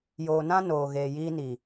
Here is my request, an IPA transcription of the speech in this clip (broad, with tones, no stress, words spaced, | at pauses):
joː˨nã˦ noː˨ɣeː˨jiː˦ni˨